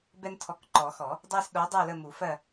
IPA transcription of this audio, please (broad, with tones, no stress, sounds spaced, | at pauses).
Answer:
b ɛ˦ n tʰ ɔ˨˥ k ǃ ɔ˨˩˦ x ɔ˨˩˦ | dˤ ɜ˦ s ɗ o˨˥ dˤ o˦˨ l ə˦˨ m u˨˩˦ f ɜ˦˨